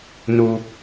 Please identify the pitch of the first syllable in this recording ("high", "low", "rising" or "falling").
high